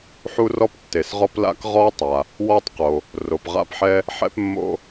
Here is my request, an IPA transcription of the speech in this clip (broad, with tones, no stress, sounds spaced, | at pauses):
ħ u˥ r ɔ˥ p tː e˩ s ʁ ɔ˥ p l a̰˥ k ʁ ɔ˥ tˤ a˩ | w ɔ˥ tˤ q o˩ | r o˩ p ʁ a̰˥ p ħ ɛ˥ | ħ ɛ̰˥ p mː o̰˥